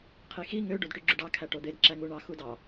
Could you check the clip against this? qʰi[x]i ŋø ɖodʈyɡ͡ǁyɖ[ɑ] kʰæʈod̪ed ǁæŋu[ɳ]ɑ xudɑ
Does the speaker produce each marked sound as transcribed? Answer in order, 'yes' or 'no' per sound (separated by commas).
yes, yes, yes